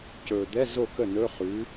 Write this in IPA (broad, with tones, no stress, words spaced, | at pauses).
cɵ˨˩ d̪ɛ˧˥˧ zo˥˩kə˥˩ nɵ˧˥˧χʉ˩˥